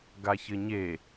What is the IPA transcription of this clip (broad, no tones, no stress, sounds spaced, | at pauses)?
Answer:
ɡ a ç ɘ ɲ e